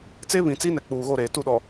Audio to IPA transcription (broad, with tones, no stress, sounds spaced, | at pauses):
t͡s e˦ β ĩ˨ t͡s i˦ n ɛ˨ k͡p uː˨ ɣ o˦˨ ɾ eː˨ t u˦˨ ɗ ɔ˨